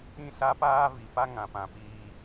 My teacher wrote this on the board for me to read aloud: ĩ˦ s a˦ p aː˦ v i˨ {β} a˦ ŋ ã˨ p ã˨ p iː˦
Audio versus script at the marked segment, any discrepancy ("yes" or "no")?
yes